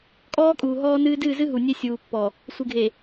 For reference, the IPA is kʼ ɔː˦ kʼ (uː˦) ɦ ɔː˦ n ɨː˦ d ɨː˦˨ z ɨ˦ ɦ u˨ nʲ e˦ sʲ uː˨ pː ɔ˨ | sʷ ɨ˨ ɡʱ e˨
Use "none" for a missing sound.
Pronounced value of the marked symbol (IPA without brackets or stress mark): uː˨